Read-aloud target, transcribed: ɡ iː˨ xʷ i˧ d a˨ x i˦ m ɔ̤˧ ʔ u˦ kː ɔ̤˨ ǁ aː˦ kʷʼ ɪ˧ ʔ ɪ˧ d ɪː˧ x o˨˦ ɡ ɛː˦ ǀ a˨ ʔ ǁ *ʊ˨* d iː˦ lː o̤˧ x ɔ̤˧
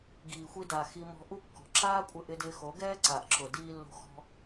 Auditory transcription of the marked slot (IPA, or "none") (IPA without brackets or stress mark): ʊ˨